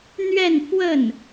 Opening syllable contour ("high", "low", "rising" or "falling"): falling